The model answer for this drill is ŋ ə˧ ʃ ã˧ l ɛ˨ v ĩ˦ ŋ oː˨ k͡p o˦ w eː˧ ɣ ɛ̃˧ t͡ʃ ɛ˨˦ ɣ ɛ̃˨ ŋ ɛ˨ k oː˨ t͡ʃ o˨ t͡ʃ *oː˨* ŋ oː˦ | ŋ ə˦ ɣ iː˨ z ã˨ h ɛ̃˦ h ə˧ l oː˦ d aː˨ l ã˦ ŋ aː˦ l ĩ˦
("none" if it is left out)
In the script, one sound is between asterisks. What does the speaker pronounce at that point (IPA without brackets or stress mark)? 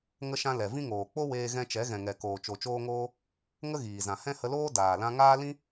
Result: oː˦